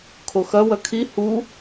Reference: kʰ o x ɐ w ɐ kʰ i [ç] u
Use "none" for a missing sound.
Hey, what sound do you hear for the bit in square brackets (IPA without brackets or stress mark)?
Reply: h